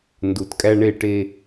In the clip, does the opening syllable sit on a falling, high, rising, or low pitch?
low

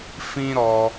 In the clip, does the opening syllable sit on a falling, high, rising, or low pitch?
high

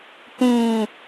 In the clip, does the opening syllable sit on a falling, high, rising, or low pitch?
falling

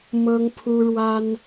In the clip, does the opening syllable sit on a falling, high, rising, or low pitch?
high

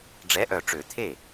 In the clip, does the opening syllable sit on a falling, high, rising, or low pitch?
rising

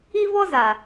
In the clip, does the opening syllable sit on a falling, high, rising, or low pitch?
high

